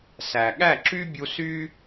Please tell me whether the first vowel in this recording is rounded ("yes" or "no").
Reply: no